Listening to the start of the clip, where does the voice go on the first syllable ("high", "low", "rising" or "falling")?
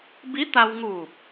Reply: rising